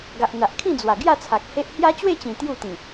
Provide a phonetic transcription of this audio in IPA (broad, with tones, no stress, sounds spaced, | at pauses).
ɡ a˨ ʔ n̪ a˨ ʔ kʰ ĩ˥˧ d͡z w a˨˩ ɡ j a˥˧ t͡sʰ a˨ k̚ h e˦ ʔ h j a˦ t͡ɕ w e˥˧ t͡ɕ ĩ˨˩ t̪ j u˥˧ t̪ ĩ˨˩